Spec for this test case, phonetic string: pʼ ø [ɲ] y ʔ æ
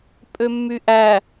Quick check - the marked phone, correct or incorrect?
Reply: incorrect